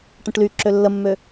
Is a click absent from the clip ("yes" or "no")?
no